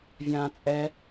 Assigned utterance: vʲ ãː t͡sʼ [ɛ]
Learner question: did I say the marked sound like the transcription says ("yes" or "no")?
yes